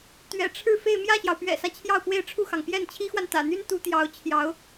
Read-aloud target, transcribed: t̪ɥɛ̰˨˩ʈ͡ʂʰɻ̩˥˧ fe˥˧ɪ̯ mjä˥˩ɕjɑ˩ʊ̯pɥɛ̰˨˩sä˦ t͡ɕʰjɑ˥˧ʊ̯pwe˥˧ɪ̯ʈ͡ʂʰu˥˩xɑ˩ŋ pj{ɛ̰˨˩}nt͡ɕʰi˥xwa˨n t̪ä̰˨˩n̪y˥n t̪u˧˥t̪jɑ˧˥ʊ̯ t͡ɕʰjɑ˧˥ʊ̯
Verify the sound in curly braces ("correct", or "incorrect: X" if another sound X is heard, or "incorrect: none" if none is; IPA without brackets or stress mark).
incorrect: ɛ˥˩